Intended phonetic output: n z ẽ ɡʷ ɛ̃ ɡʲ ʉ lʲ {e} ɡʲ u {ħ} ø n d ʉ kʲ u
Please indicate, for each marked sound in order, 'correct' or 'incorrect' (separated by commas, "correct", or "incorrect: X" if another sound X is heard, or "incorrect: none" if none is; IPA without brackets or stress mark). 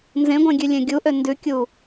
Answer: incorrect: ẽ, incorrect: ʔ